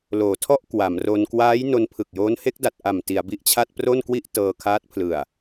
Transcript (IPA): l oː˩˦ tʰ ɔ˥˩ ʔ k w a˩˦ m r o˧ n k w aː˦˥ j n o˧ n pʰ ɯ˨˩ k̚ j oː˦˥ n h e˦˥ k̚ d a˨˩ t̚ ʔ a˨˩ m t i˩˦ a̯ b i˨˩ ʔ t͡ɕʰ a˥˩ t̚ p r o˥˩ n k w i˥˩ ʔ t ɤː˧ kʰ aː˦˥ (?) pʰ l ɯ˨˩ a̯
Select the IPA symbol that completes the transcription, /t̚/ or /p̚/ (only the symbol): t̚